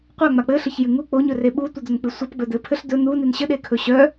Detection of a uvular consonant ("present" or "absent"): present